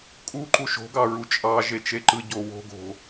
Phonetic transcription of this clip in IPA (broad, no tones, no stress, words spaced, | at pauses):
kʼuǃu ʃo̤ɡɑ ɹut͡ʃʼɑʒe t͡ʃeǃɯɟo wo̤ ɡo̤